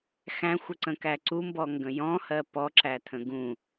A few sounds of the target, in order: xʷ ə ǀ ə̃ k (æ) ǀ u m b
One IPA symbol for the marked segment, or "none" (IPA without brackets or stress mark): æ